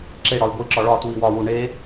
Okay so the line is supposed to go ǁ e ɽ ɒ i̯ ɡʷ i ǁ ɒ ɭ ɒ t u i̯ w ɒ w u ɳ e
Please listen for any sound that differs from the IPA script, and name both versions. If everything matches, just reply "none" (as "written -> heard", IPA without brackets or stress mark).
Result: none